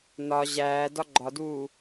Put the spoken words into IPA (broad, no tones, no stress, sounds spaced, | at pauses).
n ɒ ʑ æː d ɒ ɡ͡ǃ ɒ d uː